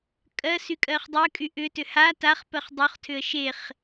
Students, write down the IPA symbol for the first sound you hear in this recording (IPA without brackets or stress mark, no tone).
kʼ